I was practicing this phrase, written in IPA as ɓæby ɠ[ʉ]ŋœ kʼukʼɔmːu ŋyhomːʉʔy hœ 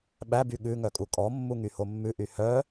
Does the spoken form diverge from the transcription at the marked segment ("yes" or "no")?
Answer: no